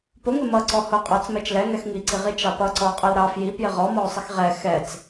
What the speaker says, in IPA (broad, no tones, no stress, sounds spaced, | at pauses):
p ʊ ŋ ɪ m ʌ ǀ ɔ h ʊ qʼ ɑ t͡s m ɛ t͡ʃ l ɛ ŋ ɛ x ŋ i ǀ i ʁ i t͡ʃ ɑ p ʌ ǀ ɔ ʊ̯ qʼ ɑ l ɾ ɑ f j i p j ɪ ʁ ɔ m ɔ ʊ̯ sˤ ɪ x ʁ ɛ x ɛ t͡s